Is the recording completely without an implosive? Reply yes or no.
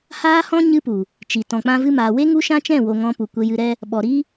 no